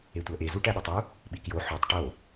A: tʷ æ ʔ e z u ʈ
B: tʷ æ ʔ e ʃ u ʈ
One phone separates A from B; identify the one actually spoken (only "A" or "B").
A